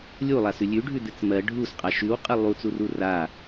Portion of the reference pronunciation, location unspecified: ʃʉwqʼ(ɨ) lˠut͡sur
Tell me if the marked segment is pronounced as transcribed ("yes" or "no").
yes